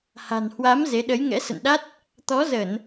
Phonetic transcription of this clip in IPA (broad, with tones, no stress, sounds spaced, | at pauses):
h a̤˨˩ n h w a˨˦ m z e˨˦ ɗ ə˨˦ j ŋ ɛ̰˧˥ s ə̰˧˨ n ɗ a˦˥ t̚ | t̪ ɔ˨˦ z ə˧˩˨ n